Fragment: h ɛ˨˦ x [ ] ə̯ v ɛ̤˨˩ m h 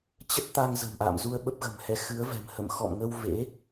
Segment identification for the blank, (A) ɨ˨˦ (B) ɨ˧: A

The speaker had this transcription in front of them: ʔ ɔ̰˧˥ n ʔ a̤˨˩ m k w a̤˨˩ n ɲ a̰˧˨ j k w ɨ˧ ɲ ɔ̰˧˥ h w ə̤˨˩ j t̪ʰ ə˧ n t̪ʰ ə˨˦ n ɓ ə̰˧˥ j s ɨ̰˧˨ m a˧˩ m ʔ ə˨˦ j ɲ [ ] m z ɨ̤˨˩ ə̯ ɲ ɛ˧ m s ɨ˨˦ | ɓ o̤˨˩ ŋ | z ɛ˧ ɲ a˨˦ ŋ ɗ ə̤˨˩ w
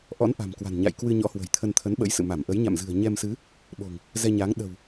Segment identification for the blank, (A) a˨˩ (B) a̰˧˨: B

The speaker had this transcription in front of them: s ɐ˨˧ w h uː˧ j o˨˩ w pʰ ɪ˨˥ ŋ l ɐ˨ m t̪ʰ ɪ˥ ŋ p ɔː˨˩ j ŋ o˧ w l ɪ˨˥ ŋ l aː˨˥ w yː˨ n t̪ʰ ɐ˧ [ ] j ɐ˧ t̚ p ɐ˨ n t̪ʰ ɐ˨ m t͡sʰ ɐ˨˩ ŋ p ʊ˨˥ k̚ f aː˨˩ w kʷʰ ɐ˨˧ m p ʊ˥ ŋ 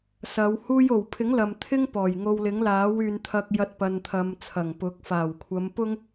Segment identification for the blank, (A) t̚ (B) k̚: B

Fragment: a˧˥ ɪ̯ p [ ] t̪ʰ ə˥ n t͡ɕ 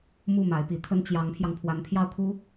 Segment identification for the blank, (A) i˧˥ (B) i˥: A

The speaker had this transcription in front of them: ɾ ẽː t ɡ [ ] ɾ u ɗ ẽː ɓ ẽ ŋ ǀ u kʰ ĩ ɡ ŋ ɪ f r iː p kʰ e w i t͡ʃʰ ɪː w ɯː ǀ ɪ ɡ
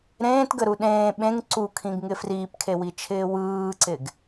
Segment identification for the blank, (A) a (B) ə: B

